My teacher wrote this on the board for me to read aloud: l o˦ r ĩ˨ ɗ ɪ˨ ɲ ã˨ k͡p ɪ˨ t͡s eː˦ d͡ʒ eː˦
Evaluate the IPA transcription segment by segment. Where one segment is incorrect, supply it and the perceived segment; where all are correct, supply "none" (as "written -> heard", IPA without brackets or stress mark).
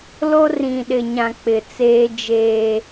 none